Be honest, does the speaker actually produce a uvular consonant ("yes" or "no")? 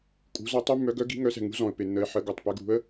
no